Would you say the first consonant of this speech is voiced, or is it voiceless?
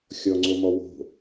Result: voiceless